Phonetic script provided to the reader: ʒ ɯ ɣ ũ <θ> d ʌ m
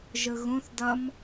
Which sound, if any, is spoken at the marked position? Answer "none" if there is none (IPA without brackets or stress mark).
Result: θ